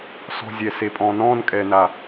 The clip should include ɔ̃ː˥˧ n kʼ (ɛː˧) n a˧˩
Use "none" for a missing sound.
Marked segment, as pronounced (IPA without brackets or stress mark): ɛː˧